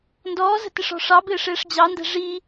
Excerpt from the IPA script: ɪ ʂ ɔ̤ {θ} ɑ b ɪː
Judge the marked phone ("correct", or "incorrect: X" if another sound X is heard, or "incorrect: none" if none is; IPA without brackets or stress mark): incorrect: ʂ